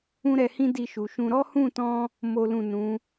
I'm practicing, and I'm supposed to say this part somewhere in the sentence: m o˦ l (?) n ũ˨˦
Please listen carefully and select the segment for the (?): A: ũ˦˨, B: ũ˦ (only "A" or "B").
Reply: A